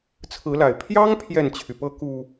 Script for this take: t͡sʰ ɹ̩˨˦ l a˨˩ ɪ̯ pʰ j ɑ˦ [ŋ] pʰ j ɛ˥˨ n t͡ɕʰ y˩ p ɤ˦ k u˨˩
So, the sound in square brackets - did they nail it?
yes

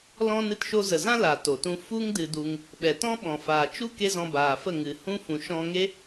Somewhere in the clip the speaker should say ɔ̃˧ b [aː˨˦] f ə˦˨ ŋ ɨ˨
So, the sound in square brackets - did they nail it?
no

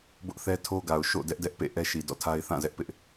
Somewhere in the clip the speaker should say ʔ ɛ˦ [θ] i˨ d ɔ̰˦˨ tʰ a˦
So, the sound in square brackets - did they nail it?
no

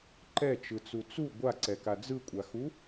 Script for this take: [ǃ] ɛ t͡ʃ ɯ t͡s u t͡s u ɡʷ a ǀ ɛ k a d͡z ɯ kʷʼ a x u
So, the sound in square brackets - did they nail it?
yes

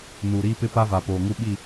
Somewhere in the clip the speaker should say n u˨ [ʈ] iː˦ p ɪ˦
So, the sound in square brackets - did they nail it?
no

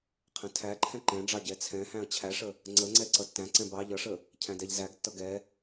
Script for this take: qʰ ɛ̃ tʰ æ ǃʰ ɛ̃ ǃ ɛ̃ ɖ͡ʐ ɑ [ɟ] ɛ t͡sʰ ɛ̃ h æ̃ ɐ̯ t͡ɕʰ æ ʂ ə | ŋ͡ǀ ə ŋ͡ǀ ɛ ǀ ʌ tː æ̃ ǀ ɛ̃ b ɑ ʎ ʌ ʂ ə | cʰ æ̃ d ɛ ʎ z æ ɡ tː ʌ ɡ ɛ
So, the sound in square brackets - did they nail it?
yes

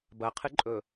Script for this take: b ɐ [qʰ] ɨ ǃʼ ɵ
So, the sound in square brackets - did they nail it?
yes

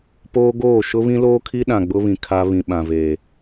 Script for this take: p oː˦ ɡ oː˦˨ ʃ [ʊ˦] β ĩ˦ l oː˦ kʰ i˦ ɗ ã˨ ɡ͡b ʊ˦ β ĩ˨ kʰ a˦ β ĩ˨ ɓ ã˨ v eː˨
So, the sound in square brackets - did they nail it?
yes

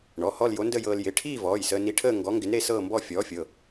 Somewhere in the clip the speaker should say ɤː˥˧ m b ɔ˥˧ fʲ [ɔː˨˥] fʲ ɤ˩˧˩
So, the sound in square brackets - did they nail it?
yes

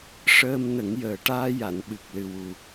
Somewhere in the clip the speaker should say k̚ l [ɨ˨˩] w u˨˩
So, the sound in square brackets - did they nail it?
yes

